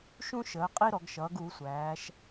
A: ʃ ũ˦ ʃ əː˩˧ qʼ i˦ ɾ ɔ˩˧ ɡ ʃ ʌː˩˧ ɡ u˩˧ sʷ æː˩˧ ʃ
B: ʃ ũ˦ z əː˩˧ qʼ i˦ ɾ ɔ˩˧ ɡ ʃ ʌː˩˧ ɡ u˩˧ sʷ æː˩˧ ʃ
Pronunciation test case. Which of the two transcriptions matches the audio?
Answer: A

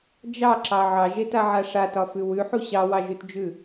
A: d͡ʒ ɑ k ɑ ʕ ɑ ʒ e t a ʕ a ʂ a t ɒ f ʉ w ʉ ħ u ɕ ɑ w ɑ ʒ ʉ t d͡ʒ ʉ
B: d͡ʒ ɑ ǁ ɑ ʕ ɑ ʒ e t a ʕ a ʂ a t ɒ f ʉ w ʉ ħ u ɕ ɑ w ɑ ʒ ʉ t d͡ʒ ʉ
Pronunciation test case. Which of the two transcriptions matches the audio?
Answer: B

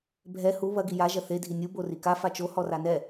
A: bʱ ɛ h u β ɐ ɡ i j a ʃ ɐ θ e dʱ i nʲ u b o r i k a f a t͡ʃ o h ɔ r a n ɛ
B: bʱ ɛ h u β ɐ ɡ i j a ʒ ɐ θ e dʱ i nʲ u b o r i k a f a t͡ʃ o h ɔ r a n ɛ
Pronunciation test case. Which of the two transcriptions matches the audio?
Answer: B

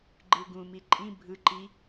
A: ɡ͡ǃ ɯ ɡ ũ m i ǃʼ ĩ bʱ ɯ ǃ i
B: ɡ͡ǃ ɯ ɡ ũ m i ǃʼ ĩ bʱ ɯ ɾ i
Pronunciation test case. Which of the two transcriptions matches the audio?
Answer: A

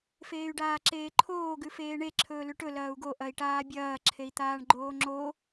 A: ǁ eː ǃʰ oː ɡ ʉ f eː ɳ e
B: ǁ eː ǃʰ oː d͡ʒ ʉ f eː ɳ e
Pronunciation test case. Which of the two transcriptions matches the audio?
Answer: A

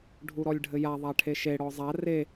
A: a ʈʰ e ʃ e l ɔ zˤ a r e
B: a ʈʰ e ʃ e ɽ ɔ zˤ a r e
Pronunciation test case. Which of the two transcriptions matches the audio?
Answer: B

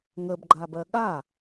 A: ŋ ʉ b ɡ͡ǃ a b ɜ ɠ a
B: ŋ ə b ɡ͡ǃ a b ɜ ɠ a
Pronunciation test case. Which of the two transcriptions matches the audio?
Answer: B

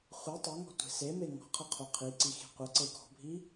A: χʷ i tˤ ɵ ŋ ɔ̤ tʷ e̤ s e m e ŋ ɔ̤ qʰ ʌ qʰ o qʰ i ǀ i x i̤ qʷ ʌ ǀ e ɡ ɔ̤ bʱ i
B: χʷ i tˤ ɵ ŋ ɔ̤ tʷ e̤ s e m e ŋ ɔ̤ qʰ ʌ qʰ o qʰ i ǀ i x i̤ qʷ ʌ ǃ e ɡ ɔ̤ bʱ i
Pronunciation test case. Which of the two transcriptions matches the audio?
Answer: A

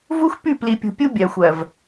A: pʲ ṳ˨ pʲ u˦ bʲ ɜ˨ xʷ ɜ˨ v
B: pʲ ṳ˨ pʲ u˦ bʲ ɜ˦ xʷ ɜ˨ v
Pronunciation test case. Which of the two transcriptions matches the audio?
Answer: A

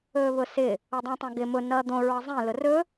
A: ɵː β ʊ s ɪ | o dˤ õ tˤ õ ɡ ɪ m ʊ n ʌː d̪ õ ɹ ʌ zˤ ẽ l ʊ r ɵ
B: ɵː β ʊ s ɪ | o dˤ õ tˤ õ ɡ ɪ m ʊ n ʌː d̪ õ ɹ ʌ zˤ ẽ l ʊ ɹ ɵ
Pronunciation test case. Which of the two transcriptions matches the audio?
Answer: A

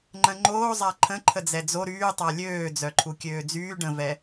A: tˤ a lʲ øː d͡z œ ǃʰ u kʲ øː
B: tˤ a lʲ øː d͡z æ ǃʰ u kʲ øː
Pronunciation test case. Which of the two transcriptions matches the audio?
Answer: A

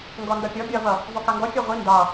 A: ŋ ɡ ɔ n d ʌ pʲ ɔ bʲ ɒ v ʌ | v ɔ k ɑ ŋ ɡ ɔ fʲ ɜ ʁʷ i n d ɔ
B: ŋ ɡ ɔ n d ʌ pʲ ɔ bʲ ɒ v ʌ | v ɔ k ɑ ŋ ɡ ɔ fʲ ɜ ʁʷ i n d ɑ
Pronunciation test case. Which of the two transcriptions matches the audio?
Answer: B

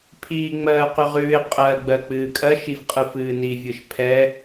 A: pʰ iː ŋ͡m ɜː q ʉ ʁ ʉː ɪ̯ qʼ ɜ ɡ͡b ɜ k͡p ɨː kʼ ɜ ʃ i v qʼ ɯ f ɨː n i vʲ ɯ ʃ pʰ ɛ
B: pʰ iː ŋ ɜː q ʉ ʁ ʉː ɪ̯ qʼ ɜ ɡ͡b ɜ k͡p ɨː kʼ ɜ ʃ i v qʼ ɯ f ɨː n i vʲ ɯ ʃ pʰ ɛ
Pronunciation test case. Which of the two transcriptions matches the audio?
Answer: A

